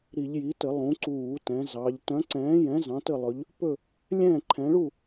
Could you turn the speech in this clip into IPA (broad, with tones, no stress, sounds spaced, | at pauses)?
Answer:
ɾ i˧˩˧ ʎ j i˨˦ t ə˧˩˧ lˠ ũ˨˦ ǀ uː˧˩˧ t ɛ̃˨˦ z ɑ˨˦ ʎ t œ̃˨˦ ǀ ɛ̃ː˨˦ j ɛ̃˨˦ z ɑ̃˨˦ t ə˥˨ lˠ ɵ˨˦ ʎ | p ɵ˥˨ | lʲ ɛ̃ː˥˨ ǃʰ ɛ̃˨˦ ɭ u˥˨